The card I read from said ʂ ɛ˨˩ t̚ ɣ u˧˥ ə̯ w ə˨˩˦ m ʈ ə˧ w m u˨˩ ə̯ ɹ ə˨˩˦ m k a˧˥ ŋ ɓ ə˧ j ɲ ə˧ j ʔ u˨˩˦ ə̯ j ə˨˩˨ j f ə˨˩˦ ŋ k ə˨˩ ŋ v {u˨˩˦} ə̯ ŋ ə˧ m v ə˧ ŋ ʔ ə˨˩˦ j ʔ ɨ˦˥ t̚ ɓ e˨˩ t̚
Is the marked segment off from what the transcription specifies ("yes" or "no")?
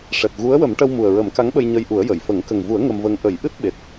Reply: no